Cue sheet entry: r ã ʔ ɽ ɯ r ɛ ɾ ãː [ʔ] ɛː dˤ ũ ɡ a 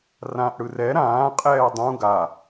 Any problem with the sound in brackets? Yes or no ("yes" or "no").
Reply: yes